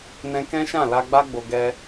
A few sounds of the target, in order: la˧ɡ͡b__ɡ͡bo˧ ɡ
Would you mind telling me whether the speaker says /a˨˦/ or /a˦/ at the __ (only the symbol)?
a˦